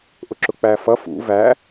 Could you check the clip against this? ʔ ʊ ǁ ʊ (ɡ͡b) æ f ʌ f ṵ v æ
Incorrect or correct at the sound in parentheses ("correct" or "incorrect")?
incorrect